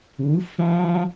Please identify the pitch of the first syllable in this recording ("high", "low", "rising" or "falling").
rising